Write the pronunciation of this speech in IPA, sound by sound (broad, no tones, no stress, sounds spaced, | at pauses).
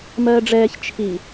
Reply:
m ɜː ɖ͡ʐ ɛː ç t͡ʃʰ i